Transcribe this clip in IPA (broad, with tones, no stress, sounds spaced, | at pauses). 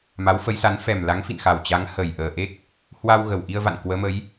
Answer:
m a˨˦ w f ə˨˦ j s a˨˦ n f ɛ˨˩ m l a˨˦ ŋ f ḭ˧˨ n x a˨˩ w t͡ɕ a˨˦ ŋ h ə˨˩ j ʔ əː˨˩ ʔ e˦˥ k̚ | h w a˧ w ɣ ə˨˩ w ʔ i˧ ə̯ v a̰˧˨ n k w əː˨˦ m ə˨˦ j